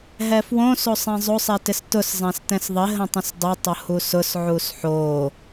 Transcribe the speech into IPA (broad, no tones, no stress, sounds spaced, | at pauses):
ɦ ɛ f w õ s o sˤ ɛ̃ zˤ o sˤ ɛ t ɪ s t ʊ s zˤ ɛ̃ s t ɛ̃ s ðˤ ɪ ɦ ə̃ tˤ ə̃ s dˤ ɪ tˤ ʊ h u s ʊ s ʕ u s ħ o